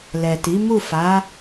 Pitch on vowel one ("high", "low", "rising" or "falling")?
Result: low